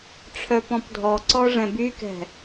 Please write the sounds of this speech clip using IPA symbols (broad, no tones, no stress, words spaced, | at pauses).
ʈ͡ʂʰœpɔ̃pdʱɔǀɔ ʐɛ̃bykɛ̤